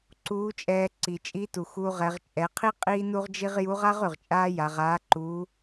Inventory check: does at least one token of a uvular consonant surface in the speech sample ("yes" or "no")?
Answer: yes